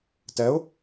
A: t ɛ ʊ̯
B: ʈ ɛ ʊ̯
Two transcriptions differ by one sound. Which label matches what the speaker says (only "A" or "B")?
A